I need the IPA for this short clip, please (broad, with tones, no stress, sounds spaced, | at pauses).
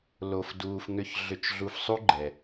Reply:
l o˧ f d uː˧ f ŋ ʏ˧ ç ɮ ʏ˧ t͡ʃ ɮ u˧ f sˤ u˦ ɡ͡ǃ ɛ˧